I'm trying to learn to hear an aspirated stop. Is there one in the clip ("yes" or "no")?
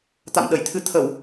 yes